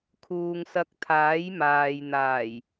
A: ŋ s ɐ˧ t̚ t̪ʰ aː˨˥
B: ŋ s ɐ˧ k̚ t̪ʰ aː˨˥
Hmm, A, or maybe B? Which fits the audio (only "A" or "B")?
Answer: B